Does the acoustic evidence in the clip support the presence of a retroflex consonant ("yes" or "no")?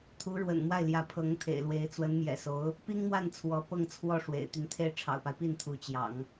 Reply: yes